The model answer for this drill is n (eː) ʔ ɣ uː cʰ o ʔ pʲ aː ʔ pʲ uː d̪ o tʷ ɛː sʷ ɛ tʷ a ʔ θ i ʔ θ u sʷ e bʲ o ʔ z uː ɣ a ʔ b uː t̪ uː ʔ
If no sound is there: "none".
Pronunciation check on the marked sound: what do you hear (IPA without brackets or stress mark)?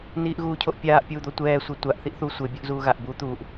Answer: iː